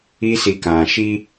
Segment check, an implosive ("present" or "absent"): absent